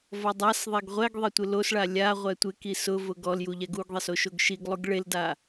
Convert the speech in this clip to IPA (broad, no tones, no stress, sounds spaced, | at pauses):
v ɔ dˤ a s ðˤ e ɡ ʁʷ ɛ ɡ ðˤ e tʷ ɪ l o s ɭ a lʲ a ʁʷ ɛ tʷ ɪ k i s ʊ v ʊ ɡ ɔ l j u ʎ ɛ ɡ u ɡ ðˤ e s o ʃ o ɡ ʃ i ɡ lˠ u ɡ ɭ e l d a